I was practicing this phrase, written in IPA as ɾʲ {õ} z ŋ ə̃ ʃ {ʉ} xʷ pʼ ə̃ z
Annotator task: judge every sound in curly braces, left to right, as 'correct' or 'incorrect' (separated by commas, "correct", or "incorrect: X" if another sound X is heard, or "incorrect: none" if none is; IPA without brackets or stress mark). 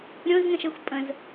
correct, incorrect: ə